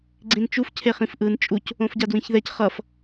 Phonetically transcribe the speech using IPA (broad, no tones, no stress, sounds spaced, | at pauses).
ɡ͡ǀ ĩ n t͡ʃ u f cʰ e χ ĩ f ʔ ɯ n t͡ʃʼ u c | õ f ɟ a d w ĩ ç ð ɛ c χ ʌ f